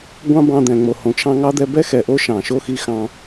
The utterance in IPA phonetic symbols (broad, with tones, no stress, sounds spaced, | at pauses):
ɡʷ ɑ̃˥ b ɑ̃˧ d̪ ɛ̃˩ ŋ͡m o˩ h õ˩ t͡ʃʰ ɑ̃˧ ŋ ɑ˥ d̪ ɛ˧ b ɛ˥ x ɛ˩ ʔ o˥ ʃ ɑ̃˩ ʃ o˥ x i˧ x ɑ̃˧